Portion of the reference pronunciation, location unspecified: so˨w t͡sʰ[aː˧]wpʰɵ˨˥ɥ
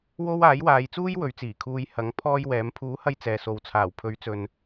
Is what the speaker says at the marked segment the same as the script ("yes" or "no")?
no